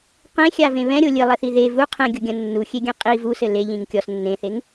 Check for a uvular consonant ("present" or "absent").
present